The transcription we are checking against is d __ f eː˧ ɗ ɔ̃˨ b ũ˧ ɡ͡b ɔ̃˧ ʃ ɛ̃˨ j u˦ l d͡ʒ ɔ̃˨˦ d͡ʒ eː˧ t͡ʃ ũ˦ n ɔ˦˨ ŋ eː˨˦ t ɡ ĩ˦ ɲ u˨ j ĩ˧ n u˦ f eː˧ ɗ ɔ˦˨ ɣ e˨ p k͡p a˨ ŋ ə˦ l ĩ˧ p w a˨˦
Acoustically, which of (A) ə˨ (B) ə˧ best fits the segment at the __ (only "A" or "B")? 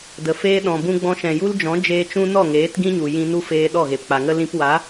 A